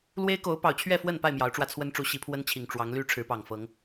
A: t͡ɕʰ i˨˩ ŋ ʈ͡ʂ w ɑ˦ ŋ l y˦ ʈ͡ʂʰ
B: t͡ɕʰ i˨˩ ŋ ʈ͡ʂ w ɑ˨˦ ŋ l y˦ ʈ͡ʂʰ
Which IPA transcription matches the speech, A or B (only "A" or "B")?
B